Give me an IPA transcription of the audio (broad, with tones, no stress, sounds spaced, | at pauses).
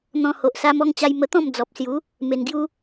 n̪ ɔ̃˧ h o˨ ʔ s a˧ m ɔ˧ ŋ t͡ɕ a˧ j m ə˧ t̪ ɔ̃˥˧ m d͡z ɔ˨ p̚ s j u˨˦ | m e˨˩ n ɡ j u˧